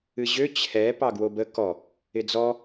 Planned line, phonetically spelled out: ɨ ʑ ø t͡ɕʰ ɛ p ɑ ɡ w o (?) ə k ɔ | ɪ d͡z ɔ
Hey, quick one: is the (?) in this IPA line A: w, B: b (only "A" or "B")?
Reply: B